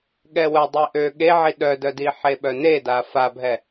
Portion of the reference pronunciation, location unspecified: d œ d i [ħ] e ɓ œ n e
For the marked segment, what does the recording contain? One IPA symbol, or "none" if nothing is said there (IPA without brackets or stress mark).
ħ